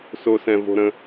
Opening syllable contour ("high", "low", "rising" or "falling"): high